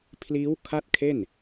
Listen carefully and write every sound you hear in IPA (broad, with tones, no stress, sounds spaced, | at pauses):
pʰ l iː˦˥ w kʰ a˥˩ t̚ kʰ e˥˩ n